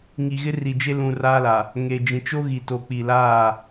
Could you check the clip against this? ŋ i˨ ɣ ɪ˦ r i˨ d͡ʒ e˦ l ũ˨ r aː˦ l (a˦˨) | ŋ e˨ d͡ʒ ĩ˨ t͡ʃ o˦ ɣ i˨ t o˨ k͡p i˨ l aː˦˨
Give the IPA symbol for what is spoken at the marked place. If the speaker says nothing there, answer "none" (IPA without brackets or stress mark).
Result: a˨